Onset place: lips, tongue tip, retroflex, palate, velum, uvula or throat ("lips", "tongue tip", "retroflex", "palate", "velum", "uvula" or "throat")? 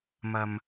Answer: lips